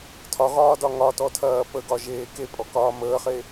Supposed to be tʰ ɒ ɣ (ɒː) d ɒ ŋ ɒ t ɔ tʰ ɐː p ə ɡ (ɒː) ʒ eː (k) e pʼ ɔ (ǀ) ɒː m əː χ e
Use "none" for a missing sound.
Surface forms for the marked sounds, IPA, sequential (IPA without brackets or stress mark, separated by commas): ɒː, ɒ, k, k